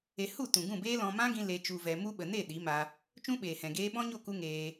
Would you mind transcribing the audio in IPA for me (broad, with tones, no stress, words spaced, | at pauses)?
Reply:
e˧ hu˦˨ tũ˨ɡũ˦˨beː˦ lɔ̃˧ mã˦ɡĩ˧ le˧ t͡ʃu˧vɛ˧ mu˦ɓə˨ ne˦˨ ɗi˨˦ma˧ | t͡ʃũ˦ɓeː˨hɛ̃˨ ɡeː˦ ɓɔ̃˦ɲo˦˨ ku˦ŋeː˧